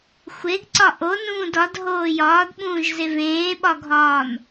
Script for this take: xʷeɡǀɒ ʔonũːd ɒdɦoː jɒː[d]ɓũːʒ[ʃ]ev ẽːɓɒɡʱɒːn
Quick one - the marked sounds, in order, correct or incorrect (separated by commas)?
correct, incorrect